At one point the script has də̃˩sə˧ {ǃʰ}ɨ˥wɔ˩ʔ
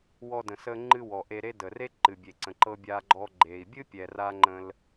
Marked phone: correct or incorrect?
incorrect